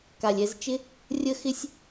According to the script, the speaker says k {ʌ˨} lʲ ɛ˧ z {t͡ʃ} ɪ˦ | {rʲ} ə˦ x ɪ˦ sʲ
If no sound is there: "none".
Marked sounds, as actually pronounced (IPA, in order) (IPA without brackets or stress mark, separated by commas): a˨, t͡ʃ, rʲ